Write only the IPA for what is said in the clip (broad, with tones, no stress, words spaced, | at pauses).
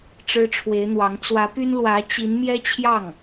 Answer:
ʈ͡ʂɻ̩˥ʈ͡ʂʰwe˧˥ɪ̯n̪wɑ˧˥ŋ t͡swä˧˥py˥n lwä˧˥t͡ɕi˧˥n mjɛ˥ t͡ɕʰjɑ˥˩ŋ